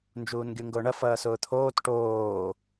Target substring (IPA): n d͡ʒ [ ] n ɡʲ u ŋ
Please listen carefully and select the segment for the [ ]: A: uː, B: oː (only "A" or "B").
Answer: A